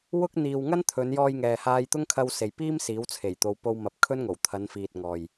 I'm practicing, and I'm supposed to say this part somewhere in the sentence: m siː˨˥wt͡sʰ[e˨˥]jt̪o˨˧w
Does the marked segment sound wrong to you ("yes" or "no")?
yes